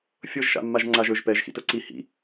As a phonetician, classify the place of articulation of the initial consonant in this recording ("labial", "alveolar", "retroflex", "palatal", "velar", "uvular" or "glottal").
labial